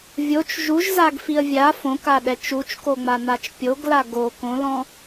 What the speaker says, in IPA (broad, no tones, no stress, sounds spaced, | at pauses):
vʲ o t͡ʃ ʒ u ʒ z a ɡ f i ə̯ vʲ a f õ k a ɗ ɛ t͡ʃ u t͡ʃ k o ŋ͡m a n a t͡ʃ pʲ o ɡ l a ɡ o k õ l ɔ̃